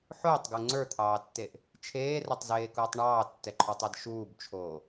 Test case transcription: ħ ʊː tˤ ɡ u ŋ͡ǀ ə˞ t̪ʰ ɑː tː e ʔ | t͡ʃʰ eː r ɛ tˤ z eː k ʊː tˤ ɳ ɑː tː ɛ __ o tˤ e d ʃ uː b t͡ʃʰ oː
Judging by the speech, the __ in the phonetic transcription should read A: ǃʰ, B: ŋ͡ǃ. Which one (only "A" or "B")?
A